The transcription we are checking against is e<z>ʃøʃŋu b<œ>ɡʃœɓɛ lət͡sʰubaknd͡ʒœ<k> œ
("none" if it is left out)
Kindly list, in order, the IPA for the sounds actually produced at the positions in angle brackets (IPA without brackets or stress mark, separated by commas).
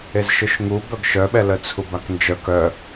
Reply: z, œ, k